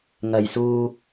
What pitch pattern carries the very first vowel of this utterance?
low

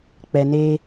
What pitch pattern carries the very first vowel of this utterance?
low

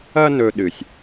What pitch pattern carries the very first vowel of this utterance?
high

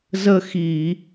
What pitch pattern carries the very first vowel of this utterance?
falling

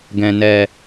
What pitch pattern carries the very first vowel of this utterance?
low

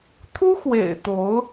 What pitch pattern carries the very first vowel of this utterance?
high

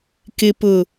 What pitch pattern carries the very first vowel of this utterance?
low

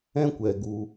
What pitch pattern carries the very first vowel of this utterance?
high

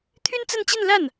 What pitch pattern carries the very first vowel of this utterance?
high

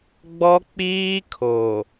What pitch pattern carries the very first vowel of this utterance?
high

